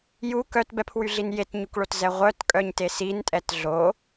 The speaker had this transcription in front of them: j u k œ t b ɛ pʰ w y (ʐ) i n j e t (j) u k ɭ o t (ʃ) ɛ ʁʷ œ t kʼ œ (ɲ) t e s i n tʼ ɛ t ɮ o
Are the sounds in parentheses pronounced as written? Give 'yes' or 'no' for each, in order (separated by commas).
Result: no, no, no, yes